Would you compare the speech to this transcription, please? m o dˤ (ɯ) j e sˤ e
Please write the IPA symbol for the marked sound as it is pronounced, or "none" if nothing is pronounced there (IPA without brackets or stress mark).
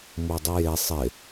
ɯ